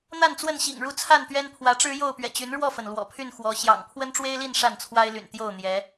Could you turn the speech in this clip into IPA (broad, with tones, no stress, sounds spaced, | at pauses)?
n̪ a˥˨ n t͡s w ə˥˨ n ɕ ḭ˨˩ ŋ ɻ u˥˨ t͡sʰ a˥˨ n t̪ ɥ ɛ˦ n pʰ w ä˨˦ ʈ͡ʂ ɻ̩˦ j o˥˨ ʊ̯ p ɥ ɛ̰˨˩ t͡ɕ y˨˦ n ɻ w ɔ˥˨ f ə˩ n l w ɔ̰˨˩ pʰ y˥˨ n x w ɔ˨˦ ɕ j ɑ̰˨˩ ŋ pʰ w ə˦ n ʈ͡ʂ w e˦ ɪ̯ l i˥˨ n ʂ a˥˨ n t͡sʰ w a˦ ɪ̯ l y̰˨˩ n t̪ j o˥˨ ʊ̯ n̪ j ɛ˨˦